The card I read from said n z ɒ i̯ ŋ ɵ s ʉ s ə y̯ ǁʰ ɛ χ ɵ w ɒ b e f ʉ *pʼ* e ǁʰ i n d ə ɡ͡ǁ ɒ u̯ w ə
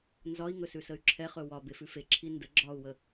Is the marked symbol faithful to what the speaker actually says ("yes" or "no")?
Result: no